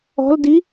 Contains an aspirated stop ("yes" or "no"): no